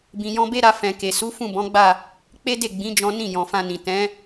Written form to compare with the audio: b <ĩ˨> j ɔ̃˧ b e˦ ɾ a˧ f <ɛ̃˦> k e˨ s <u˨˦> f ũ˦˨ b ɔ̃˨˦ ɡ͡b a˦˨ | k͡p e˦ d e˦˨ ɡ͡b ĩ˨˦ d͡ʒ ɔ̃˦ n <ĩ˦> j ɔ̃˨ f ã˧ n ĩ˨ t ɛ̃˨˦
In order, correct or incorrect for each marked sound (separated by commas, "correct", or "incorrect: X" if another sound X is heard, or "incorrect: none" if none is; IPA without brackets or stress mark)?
correct, incorrect: ɛ̃˨, correct, incorrect: ĩ˦˨